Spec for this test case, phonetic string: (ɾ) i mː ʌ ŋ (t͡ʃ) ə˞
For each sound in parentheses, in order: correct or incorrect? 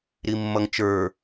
correct, correct

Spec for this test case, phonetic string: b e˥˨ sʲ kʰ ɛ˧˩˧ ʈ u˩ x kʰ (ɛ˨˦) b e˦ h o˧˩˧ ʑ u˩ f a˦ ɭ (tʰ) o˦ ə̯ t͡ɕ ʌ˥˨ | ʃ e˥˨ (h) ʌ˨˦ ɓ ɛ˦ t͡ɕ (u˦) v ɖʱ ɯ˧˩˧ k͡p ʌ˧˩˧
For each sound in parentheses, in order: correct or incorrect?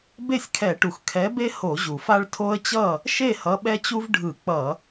correct, correct, correct, correct

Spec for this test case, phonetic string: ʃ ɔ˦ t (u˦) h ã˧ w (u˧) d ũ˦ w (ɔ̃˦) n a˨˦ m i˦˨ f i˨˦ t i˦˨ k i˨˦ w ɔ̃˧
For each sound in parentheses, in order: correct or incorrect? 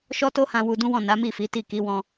incorrect, correct, incorrect

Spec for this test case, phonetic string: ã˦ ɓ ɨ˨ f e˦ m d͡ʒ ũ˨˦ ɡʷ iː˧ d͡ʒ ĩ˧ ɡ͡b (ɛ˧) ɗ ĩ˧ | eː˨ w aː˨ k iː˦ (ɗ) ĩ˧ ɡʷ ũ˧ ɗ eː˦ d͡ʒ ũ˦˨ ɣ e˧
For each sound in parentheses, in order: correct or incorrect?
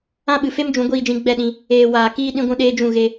incorrect, correct

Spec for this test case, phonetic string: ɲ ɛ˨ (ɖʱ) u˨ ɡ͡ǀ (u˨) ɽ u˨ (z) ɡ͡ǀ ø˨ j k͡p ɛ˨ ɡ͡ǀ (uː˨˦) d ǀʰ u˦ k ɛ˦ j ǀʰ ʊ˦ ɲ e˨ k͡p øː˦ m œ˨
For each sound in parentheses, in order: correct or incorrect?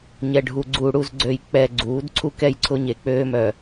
correct, correct, correct, correct

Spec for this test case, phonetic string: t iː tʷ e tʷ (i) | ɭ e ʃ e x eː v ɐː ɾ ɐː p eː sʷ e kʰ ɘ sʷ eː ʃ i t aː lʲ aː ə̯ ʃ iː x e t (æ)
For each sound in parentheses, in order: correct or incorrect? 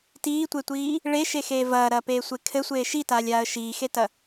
incorrect, incorrect

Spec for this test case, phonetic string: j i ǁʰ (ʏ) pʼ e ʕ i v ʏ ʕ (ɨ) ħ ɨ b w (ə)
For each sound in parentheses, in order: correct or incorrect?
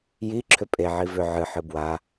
correct, correct, incorrect

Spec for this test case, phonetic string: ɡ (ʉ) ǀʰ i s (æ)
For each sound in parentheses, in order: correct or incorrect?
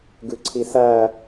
correct, correct

